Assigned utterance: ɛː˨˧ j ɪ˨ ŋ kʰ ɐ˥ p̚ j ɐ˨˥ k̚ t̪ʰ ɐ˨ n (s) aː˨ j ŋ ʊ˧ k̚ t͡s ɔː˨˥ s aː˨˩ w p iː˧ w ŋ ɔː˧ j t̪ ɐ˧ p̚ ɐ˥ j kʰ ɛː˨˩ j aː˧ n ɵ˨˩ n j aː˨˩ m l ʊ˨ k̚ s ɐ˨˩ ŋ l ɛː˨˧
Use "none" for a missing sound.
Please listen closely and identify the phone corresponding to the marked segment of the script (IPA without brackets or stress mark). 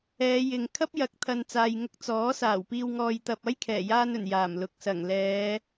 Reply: t͡s